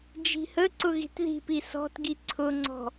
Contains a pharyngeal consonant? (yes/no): no